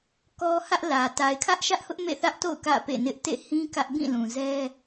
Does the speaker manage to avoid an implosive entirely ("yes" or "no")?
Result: yes